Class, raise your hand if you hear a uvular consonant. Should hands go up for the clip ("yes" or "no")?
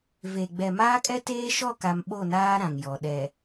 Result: no